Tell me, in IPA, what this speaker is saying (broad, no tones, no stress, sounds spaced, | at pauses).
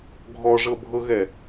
ɡʱ ɔ ʐ ɤ bʱ ɤ ɣ ɛ